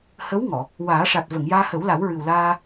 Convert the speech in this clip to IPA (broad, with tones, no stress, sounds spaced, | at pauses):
h ə˧˥ w ŋ ɔ˨˩˨ | w aː˨˩˦ ʂ a˨˩ t̚ v ə˨˩˨ ŋ j aː˧ h ə˨˩˦ w l a˨˩˦ w ɹ ɨ˨˩ w l aː˧